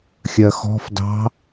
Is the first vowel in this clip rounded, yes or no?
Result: no